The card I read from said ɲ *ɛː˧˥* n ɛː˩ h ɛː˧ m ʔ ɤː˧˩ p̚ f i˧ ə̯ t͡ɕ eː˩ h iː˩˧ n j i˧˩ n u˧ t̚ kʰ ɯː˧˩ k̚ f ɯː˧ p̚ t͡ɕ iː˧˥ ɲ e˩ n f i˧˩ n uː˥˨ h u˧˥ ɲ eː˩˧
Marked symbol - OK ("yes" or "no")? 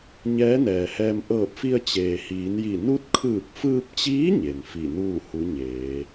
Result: yes